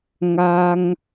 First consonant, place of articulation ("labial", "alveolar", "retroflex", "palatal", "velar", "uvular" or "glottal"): velar